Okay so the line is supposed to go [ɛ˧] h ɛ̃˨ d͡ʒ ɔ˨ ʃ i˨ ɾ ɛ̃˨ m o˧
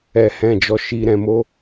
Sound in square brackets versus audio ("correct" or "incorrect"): incorrect